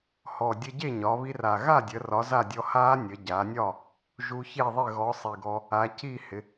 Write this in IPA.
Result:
h ɔ˨˩ dʲ ə˧ ɟ e˥˩ ɲ ɒ˩˧ β i˧ r a˨˩ ɣ a˥˩ dʲ ə˩˧ r ɒ˨˥ z a˥˩ dʲ ɔ˧ h a˦˥ nʲ ə˩˧ ɟ a˩˧ nʲ ɒ˥˩ | ʒ u˧ ç e˥˩ ðˤ ɪ˥˩ ɣ ɔ˨˥ sˤ i˨˩ ɡ ɔ˧ | a˩˧ c i˥˩ h ɪ˩˧

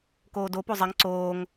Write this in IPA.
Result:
k oː d o p o zˤ ə ŋ ǀ oː ŋ

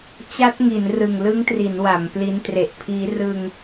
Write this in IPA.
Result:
t͡ɕ a˦˥ t̚ ŋ i˩˦ n r ɯ˨˩ ŋ l ɯ˦˥ ŋ t r i˩˦ n w a˩˦ m p l i˦˥ n t r e˨˩ ʔ pʰ iː˦˥ r ɯ˧ ŋ

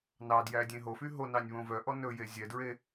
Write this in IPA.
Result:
n ɑ d j æ dʲ ẽ ɦ o f y ɦ o n ɑ nʲ β õ v œ ʔ ɔ n ɵ j e zʲ ɛ d ɹ e

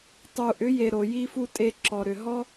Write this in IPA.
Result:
tˤ u˨ ʔ ʏ˨˦ j e˨ ɾ o˨ j i˧ f u˧ tʼ e˧ ǁ ɔ˨ ɾ ʏ˨ ɦ ɔ˦

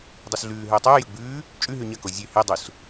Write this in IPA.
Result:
dˤ ɨ s ɮ ʉː ɦ ɵː tˤ ʉː j ɵ ɡ͡b ʉː | t͡ʃʼ ʉ ɦ ʉ ɲ ɐ k o zʲ ʉ h e dˤ u s

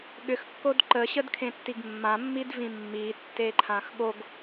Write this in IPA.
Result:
ɠ ʏ x kː o d ǃ ə ɕ ə d kʰ ẽ tː i ɡ mː ã mː i d v ĩ mː i tː e ǃʰ ã x ɠ o ɡ

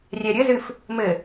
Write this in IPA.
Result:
rʲ ɛ ɾʲ ɘ z ɨ f | m ɘ

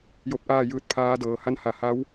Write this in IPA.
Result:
j o˧˥ p̚ ʔ aː˥˨ j ɯː˧˥ t̚ pʰ aː˧˥ d ɤː˩˧ h a˧˥ n h a˧˩ h a˧˥ w

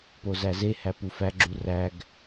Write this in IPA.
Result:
p o z æ z e h æ p u f æ ɡ͡ǁ u r æ ɡ

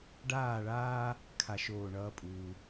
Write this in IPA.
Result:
ɖ aː˥˧ ɭ aː˥ | kʰ a˥ ʃ oː˥˧ ɳ ʌː˥ pʼ uː˧

